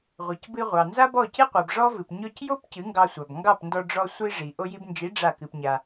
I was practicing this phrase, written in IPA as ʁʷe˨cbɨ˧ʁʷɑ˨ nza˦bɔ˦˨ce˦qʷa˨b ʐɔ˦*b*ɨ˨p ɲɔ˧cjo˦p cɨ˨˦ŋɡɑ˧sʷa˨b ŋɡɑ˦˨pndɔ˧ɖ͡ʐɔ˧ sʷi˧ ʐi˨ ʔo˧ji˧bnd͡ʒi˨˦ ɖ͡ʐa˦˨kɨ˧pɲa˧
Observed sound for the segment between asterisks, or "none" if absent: v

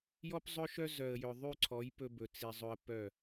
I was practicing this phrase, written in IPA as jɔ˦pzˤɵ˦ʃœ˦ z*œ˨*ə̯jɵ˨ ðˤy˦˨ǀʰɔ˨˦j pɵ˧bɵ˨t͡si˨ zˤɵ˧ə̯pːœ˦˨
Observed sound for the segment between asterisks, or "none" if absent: œ˨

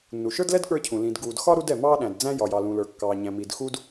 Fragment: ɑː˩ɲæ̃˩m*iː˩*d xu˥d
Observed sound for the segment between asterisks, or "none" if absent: iː˩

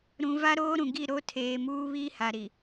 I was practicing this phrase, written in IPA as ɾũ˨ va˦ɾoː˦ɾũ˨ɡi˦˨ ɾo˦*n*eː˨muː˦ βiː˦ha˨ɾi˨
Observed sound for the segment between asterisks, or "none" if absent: tʰ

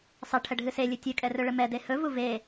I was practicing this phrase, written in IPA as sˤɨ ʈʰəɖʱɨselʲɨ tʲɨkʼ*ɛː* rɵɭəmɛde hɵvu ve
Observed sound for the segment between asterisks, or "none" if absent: ɛ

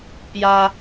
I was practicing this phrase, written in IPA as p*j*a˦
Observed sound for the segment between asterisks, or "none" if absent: j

